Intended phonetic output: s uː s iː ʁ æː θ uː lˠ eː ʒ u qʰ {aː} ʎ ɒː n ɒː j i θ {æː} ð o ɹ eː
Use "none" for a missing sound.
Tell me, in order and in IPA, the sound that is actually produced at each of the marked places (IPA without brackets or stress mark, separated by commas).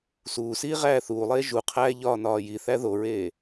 æː, æ